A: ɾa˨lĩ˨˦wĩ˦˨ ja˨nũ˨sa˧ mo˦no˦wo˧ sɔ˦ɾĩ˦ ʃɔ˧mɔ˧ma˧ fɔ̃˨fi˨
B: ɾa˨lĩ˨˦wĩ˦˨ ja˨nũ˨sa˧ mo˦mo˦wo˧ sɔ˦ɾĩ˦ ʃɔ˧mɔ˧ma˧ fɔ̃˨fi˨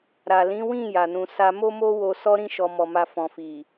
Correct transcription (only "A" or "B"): B